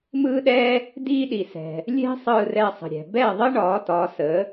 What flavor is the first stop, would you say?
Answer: implosive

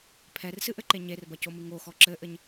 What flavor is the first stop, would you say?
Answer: aspirated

